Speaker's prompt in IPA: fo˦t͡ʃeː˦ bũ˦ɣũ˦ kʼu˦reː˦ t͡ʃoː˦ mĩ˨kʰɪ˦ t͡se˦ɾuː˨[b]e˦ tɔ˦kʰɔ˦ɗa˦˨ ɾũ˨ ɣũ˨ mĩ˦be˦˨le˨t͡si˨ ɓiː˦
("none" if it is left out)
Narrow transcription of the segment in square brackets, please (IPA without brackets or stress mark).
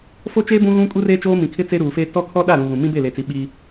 f